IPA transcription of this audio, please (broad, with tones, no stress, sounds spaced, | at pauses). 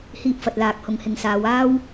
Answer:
h iː˧ p̚ f ɐ˨ t̚ l aː˨ k̚ h ʊ˨ ŋ h ɪ˨ ŋ s aː˨˧ w aː˥ w